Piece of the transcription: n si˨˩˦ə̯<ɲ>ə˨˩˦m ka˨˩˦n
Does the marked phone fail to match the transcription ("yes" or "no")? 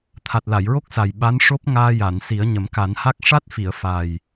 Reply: no